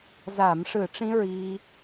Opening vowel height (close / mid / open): open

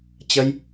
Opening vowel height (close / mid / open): mid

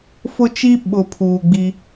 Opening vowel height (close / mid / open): close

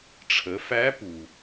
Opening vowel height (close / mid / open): mid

